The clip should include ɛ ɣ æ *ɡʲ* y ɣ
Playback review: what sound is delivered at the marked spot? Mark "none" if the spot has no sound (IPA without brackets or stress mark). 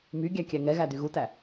d